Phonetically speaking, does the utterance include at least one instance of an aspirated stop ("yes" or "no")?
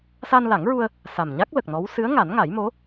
no